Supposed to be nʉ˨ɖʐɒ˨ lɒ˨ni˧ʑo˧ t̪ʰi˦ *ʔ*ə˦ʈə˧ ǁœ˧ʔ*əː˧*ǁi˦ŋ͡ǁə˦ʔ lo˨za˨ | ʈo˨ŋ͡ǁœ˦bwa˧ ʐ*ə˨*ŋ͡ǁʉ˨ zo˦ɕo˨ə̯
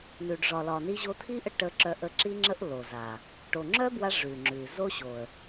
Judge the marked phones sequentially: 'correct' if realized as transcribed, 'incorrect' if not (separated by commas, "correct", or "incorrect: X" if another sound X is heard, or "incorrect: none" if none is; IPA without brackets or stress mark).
correct, incorrect: ə˧, incorrect: ʉ˨